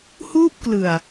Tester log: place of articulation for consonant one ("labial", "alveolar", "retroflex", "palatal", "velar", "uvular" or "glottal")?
glottal